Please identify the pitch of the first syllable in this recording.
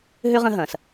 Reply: high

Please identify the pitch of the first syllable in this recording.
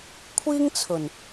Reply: high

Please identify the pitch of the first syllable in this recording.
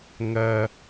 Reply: high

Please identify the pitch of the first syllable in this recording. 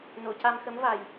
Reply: low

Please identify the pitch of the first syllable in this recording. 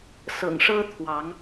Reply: low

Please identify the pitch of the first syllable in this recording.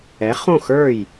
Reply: rising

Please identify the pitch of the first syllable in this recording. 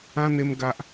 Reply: high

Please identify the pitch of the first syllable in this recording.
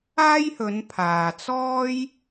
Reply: high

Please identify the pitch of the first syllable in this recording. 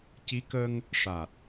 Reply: rising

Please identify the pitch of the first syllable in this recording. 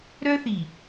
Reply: high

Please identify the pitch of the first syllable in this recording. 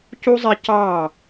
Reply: high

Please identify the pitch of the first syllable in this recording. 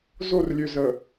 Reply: falling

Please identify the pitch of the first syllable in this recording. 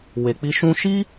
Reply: low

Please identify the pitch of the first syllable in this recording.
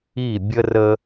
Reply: falling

